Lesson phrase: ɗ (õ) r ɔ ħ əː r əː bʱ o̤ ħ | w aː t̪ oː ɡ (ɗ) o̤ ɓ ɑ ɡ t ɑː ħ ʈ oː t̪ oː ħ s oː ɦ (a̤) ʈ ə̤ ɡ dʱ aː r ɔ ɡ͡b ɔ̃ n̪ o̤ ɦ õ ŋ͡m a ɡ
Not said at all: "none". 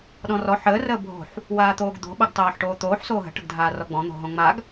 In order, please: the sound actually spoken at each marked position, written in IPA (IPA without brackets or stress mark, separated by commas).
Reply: ɔ̃, d̪, ə̤